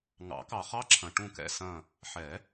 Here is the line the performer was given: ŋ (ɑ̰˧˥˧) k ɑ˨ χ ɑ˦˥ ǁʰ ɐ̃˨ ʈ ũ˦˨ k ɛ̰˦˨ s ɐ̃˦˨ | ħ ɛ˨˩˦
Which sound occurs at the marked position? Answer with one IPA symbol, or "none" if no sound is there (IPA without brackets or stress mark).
ɑ̰˨˩˦